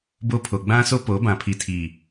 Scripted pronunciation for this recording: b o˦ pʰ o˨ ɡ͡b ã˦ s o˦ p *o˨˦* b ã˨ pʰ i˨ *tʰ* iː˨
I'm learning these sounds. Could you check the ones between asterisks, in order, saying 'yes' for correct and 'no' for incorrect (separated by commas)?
yes, yes